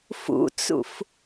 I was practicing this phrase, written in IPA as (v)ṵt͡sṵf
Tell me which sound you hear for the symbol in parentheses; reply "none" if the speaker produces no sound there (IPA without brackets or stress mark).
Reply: f